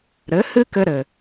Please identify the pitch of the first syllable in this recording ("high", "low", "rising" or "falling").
rising